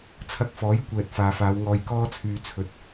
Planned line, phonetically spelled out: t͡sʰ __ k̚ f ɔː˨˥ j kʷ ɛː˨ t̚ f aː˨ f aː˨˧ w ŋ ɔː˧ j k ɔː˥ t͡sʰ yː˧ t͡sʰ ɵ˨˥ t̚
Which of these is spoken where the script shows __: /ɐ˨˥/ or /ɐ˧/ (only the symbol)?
ɐ˧